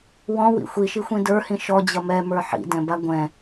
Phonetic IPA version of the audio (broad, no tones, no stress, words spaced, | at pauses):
wɔ̃wḭ xʷiʃixʷĩ də˞hĩ ʃɔd͡ʑʌ mɛmə˞ ħḭdɛ̃ba ɡʷɛ̃